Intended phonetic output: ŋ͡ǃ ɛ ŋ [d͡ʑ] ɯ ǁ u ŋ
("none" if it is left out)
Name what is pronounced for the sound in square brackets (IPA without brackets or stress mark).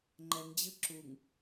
d͡ʑ